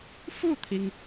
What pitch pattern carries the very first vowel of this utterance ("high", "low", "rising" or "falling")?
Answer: falling